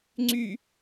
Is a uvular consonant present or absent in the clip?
absent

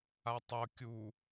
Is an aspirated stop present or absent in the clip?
absent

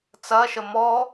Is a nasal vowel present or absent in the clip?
absent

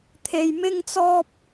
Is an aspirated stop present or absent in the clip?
present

